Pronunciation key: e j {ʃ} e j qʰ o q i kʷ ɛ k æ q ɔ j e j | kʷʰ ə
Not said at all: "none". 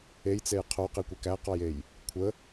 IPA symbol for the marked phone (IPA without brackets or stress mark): t͡s